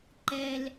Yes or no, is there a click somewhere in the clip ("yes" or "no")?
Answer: yes